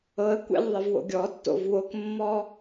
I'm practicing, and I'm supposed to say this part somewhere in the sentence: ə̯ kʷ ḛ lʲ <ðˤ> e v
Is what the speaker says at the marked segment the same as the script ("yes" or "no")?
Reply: yes